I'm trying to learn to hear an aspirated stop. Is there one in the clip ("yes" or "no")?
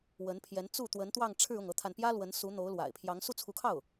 yes